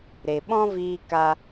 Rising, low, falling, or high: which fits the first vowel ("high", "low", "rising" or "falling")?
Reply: low